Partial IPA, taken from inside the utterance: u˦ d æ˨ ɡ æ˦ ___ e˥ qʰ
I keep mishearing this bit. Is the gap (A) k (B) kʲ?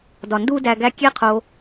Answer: B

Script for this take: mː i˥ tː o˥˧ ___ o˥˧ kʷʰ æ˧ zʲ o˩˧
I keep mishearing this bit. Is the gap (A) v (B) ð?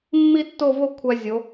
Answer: A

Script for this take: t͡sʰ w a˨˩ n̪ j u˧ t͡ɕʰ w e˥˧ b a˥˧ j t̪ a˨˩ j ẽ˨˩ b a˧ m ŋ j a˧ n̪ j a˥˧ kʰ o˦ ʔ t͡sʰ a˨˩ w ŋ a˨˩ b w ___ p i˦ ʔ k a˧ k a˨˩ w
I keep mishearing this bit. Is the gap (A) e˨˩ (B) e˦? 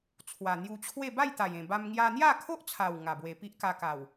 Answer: A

